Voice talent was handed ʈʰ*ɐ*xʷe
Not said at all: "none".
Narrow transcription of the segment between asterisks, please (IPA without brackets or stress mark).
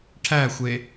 æ